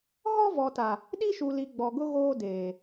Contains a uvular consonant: no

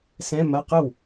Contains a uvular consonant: yes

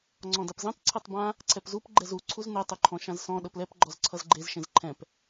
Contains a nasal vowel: yes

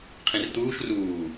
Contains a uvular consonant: yes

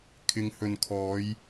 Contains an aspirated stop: yes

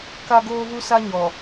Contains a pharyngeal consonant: no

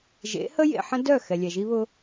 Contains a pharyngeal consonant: yes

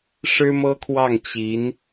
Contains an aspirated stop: yes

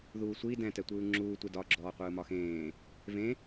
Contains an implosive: no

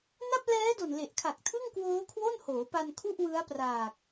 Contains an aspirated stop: yes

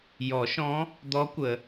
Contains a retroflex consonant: no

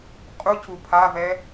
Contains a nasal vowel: no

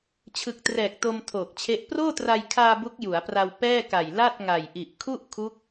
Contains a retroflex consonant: no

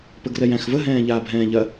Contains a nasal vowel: yes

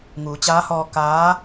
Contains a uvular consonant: no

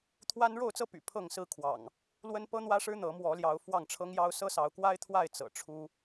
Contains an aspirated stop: yes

